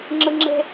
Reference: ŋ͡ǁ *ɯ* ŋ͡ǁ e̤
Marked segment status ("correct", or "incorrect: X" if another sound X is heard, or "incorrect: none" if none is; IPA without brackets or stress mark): correct